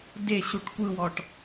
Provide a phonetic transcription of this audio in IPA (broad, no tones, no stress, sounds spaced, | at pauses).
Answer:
d e ɕ u ʈ kʷ ɯ w ɔ ʈ